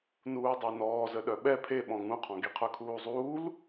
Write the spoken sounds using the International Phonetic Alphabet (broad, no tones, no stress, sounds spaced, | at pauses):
n uː dˤ e n ɔː z ə ɗ œ ɓ ɛ pʰ e ɓ ɔ̃ ŋ ũ qʰ ɔ̃ ɡ i qʰ œ kʰ uː zˤ uː l